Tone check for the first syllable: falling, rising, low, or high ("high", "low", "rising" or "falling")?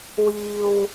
low